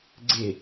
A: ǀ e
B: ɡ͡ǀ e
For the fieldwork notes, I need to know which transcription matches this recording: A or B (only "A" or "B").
B